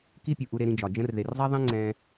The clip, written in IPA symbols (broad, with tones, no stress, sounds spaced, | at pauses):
k i˦ pʲ u˨ ʔ u˧ ɾ e˧ ɾ ĩ˧ d͡ʒ ɒ˨ d͡ʒ ə̃˧ r ð e˨ r zˤ ɛ˦ ðˤ ẽ˦ ŋ͡ǀ ɛ̃˧